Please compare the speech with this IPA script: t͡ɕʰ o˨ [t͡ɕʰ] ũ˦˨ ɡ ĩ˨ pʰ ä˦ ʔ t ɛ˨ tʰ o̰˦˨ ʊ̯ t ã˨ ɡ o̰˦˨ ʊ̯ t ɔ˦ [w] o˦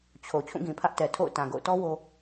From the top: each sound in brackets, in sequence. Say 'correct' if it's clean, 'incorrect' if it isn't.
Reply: correct, correct

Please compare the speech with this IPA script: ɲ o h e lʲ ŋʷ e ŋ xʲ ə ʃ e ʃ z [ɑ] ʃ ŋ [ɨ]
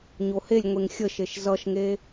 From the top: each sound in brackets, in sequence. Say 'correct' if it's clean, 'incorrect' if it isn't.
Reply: incorrect: ʌ, incorrect: e

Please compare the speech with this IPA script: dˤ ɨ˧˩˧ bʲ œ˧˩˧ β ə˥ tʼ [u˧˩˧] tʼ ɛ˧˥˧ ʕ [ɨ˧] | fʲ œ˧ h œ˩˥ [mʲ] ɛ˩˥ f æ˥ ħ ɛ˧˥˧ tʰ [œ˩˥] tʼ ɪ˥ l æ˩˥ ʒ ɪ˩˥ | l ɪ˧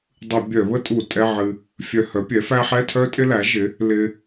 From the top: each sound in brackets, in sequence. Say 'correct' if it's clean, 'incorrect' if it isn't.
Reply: correct, correct, incorrect: pʲ, incorrect: œ˥

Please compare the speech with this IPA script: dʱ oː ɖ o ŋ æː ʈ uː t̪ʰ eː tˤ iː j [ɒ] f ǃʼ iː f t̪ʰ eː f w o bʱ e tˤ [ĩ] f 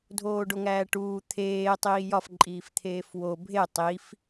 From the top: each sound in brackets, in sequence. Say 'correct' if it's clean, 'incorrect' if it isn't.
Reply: correct, incorrect: i

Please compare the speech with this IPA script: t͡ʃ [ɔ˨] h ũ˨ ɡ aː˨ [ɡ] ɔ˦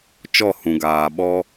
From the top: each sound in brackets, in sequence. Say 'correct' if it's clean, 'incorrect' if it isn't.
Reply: incorrect: ɔ˦˨, incorrect: ɓ

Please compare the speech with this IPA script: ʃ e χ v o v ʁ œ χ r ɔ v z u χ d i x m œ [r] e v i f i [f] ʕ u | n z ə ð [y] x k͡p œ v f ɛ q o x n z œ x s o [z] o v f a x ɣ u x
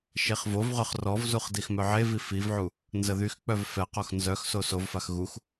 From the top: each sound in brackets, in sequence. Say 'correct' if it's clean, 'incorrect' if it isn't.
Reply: incorrect: ʕ, incorrect: v, correct, incorrect: s

